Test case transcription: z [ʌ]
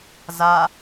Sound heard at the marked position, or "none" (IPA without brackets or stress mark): a